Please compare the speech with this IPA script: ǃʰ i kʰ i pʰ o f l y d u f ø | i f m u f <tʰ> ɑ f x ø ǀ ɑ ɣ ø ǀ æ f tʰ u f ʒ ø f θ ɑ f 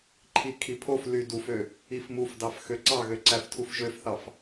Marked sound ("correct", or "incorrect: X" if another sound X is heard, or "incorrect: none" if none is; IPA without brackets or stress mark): incorrect: d